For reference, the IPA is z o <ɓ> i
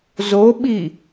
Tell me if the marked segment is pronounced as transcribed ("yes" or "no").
yes